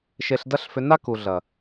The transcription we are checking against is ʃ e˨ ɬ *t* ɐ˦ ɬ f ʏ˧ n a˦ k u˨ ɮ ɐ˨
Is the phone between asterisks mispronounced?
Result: yes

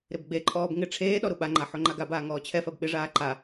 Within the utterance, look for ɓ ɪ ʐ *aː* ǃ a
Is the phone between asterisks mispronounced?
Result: no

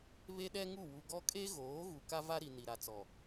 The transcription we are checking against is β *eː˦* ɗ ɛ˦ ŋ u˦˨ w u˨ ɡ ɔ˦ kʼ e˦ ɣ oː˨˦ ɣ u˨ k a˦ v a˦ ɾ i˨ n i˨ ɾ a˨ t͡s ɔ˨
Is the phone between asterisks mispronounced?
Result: yes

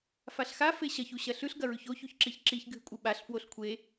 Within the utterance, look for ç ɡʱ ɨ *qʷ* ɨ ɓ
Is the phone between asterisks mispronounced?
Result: yes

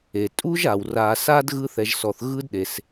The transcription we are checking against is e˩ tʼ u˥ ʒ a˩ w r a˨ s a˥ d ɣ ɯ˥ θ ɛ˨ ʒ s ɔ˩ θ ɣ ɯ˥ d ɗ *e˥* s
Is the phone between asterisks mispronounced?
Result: yes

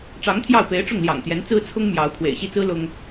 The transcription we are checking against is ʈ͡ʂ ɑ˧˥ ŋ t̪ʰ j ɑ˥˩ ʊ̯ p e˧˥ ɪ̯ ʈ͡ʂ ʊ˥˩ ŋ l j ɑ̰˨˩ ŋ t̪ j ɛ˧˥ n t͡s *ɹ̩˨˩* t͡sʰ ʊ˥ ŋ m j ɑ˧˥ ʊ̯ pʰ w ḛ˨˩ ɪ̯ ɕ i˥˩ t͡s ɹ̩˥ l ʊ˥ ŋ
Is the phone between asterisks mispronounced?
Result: yes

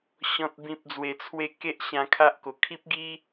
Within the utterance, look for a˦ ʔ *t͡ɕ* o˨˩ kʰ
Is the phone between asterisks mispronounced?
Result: yes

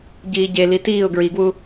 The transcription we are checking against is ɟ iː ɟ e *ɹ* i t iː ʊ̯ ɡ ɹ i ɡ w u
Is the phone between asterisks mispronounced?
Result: yes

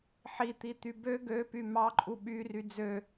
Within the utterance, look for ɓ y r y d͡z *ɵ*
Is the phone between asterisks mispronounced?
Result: yes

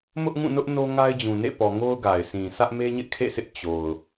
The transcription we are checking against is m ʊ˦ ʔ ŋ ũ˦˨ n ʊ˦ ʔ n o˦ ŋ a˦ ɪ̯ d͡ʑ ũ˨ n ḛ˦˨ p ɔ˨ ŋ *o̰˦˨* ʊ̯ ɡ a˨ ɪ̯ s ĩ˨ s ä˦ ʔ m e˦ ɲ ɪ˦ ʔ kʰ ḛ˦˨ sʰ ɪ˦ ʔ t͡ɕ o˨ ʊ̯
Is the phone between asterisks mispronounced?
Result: yes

